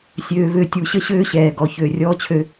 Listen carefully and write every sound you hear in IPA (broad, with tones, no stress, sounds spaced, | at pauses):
sʲ øː˨ v ø˨ tʲ u˨ ɕ ə˦ ɕ øː˦ ɕ ɛː˨ ɡ ɔ˨ ç ø˨ rʲ ɔː˦ t͡ɕʰ ø˦